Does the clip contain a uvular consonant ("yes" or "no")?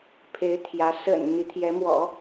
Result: no